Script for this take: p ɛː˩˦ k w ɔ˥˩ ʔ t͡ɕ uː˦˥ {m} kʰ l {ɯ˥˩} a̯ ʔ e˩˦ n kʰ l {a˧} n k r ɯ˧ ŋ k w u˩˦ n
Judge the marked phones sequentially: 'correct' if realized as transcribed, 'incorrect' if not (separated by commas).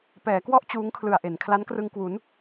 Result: incorrect, incorrect, incorrect